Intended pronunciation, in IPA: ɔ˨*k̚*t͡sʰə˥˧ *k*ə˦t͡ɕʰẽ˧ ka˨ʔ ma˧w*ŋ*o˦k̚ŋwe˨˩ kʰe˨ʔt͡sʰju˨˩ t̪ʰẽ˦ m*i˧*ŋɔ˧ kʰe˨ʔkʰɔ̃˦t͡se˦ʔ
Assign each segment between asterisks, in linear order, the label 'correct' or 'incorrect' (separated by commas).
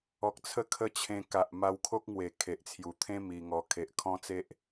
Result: correct, incorrect, incorrect, correct